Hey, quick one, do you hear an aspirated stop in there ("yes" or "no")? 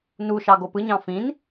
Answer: no